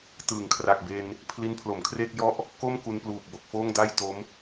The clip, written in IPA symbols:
t ɯː˩˦ ŋ kʰ r a˨˩ k̚ b e˧ n | pʰ l i˦˥ n pʰ l o˩˦ m kʰ r eː˥˩ k̚ j ɔ˥˩ ʔ | k o˥˩ m k u˧ n p l uː˨˩ p̚ b o˨˩ k̚ f oː˥˩ ŋ d a˥˩ j t o˦˥ m

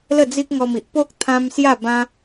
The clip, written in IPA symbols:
l ə˥˧ d͡z i˦ k̚ ŋ ɔ˧ m i˨ ʔ p o˦ k̚ t̪ʰ ã˦ m s j a˥˧ b ã˦

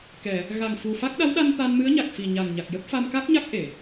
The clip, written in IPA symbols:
k ɛ˨˩˨ | ɣ a˨˩ ŋ f u˨˩ f a˦˥ k̚ ɗ a˧˥ w ɗ a˧ n t̪ a˧ n m ɨ˧˥ ə̯ ɲ a˨˩ k̚ f i˨˩ ɲ a˨˩ ŋ ɲ a˨˩ k̚ j ə˦˥ k̚ f a˧ m k a˦˥ k̚ ɲ a˦˥ k̚ ʔ e˨˩˨

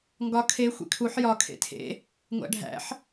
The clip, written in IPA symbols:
ŋ ɡ ɒ kʰ e xʷ ḛ kʰ u ħ j ɒ kʰ ḛ tʰ ḛ | ŋʷ æ̰ ɖʱ æ̰ ħ

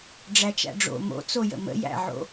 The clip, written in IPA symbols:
ɖ͡ʐ æ t͡ʃ æ̰ ɖ͡ʐ o̰ m o̰ t͡s o j ə̰ m ə̰ j æ̰ ʕ o̰

